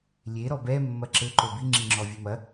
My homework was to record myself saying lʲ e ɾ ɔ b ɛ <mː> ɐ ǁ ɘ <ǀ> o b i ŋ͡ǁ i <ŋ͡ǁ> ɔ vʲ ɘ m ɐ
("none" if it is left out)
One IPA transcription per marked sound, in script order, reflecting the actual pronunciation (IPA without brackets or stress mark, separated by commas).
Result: mː, ǃ, ŋ͡ǁ